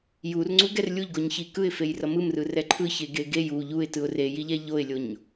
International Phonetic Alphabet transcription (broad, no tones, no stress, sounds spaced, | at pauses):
j u r ŋ͡ǀ u ɡ ɛ r lʲ u ʎ ɡ o ɲ ç i k ɯ ɪ̯ f e j r ʌ m ɯ m r ɯ r ɛ ǃʰ ɯ ç e ɡ e ɡ e j u ʎ u ɪ̯ t ɯ ʊ̯ r e j i ʎ ɛ ʎ o ɪ̯ lʲ o ɲ